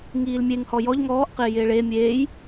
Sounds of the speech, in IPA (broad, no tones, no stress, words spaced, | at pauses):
ŋiːlmʲeŋ hɔjɔʎ ŋɔːʔ qɪːjɪːɭeː mʲeːj